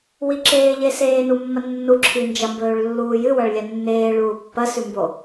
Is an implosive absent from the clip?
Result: yes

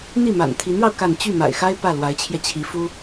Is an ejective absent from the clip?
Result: yes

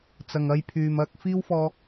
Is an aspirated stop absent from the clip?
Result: no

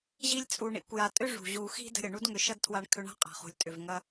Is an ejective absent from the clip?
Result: no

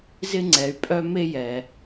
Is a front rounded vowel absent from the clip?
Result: no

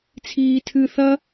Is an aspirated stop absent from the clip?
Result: no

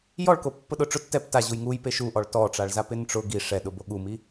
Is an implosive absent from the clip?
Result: no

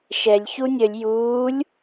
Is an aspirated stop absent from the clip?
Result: yes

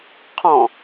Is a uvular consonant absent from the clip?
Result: no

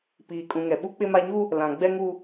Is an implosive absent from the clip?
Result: no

